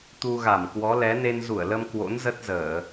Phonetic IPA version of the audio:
t̪ u˧ ɣ a˧˩ m k w ɔ˨˦ l ɛ˨˦ n e˧ n z u˧˩ ə̯ l ə˧ m k w o̰˧˥ n z ə˦˥ t̚ z əː˧˩˨

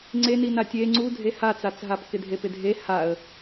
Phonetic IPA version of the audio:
ŋ͡ǀ e n i n a tʲ e ŋ͡ǀ u dʱ e h a t͡s a t͡s ɦ a p k ɪ dʱ e p ɪ dʱ e h a ə̯

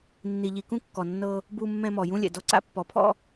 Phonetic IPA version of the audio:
nː i˨ ʎ i˨ k ũ˦ kː ɔ˨ nː ɤ˦ | b u˨ mː ɛ̃˨ m ɔ˨ j ũ˦ lʲ ɛ̰˨ d ɔ˦ ǀ a̰˦ pː ɔ˨ pʰ ɔ̰˦

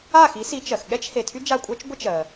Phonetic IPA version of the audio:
a˥˩ x i˨˥ s i˨˥ t͡ʃ ɜ˩ x ɠ ɛ˥ t͡ʃ h e˩˧˩ tʰ y˥ d͡ʒ a˥˩ kʷʼ ɜ˥ t͡ʃ ɡʷ ə˥ t͡ʃ ɜ˩

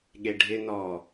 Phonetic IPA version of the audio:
ɠ e ɖʱ ɪ n ɔ

